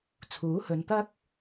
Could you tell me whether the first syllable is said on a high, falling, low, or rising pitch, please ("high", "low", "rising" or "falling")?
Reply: rising